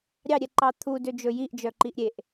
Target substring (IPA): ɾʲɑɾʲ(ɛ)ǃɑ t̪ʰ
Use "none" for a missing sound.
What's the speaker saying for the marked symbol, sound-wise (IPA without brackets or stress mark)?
ɛ